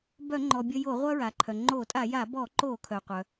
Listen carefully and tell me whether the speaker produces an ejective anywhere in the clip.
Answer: yes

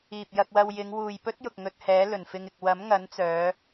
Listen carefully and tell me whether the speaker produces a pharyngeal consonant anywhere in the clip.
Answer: no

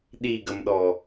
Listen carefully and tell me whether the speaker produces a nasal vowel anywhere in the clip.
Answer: no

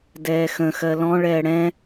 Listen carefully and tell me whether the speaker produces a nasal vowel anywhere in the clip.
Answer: yes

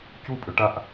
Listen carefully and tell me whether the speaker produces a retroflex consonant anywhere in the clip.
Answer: yes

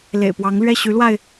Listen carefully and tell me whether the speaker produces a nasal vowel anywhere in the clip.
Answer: no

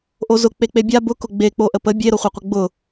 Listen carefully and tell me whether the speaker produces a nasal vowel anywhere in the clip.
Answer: no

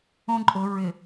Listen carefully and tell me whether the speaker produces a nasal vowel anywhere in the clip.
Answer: yes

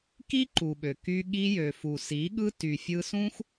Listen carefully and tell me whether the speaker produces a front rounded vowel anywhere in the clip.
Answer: yes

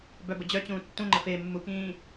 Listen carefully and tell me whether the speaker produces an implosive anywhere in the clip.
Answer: no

